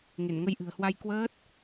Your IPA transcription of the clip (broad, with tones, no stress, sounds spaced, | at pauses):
ŋ e˧˩ n ŋ ə˧ j ʔ ɨ̤˨˩ ə̯ h w a˧ j k w əː˦˥ t̚